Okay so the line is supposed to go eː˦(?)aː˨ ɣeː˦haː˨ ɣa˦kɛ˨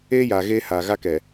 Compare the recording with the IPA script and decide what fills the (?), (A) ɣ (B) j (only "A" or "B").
B